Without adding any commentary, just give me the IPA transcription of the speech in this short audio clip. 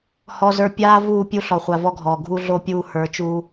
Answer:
hɔ˨zə˞˨ pʲaː˦ vuː˦˨pʲu˦ ɬɔ˨χʷa˨vɔ˦ɡʱɔː˨ ɡʱu˦ɮo˦ pʲuː˦ hə˞˨˦t͡ʃuː˦

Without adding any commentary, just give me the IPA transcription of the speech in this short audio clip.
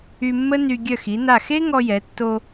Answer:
y˧mːə˥ny˧ ɡʲœ˧˩xi˩˧na˧˩xe˥ ŋɔ˧jɛ˩˧tːo˧

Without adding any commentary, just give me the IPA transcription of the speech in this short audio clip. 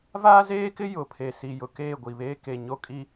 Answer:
vaː˦zeː˦kɪ˦ jʊ˨pʰe˨ si˨jʊ˨keː˦˨ ɡʷi˨βeː˦ ke˨ ɲo˦kʼi˦

